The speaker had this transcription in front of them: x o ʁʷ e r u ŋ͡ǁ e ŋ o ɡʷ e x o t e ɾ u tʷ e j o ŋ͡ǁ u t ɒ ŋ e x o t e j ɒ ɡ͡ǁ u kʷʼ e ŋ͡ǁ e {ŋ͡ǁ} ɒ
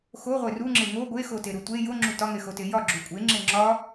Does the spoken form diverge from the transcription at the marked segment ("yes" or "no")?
no